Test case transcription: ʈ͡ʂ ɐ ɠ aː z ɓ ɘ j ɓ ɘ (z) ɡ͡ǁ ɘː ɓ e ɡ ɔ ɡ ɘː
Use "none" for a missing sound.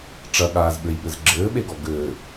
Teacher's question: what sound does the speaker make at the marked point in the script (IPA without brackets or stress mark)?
z